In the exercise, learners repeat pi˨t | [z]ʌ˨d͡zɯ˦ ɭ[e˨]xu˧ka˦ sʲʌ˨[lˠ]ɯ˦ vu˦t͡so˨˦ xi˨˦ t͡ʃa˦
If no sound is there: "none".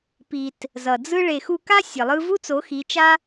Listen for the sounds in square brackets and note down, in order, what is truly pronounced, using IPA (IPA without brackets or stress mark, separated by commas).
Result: z, e˨, lˠ